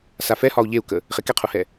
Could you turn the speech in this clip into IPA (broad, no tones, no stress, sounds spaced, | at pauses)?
s a f ɛ h ɒ u̯ ʎ e u̯ k ə | χ e k ɛ qʰ u h ɛ